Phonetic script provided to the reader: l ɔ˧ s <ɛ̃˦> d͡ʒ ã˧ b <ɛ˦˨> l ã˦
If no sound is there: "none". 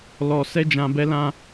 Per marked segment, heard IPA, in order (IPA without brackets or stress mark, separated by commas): ɛ˦, ɛ˦